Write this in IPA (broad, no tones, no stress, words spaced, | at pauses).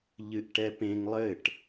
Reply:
ʎɨʔʈɛpẽŋ lˠɘʈ